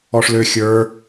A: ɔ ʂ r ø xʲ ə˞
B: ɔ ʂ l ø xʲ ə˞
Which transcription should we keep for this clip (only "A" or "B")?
B